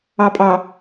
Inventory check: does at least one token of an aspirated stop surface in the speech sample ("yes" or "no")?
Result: no